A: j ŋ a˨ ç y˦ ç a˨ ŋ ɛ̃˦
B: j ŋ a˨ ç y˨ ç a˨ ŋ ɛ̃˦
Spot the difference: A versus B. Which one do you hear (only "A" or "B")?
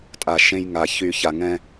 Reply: B